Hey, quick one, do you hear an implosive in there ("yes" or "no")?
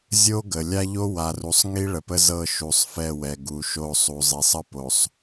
no